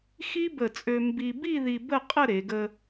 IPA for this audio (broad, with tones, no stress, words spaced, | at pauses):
xi˥bə˧˩t͡sʼø˧ mbi˧ bi˥˧ði˧ bə˥˧qʼə˥˧ ɾe˩˧ɡə˧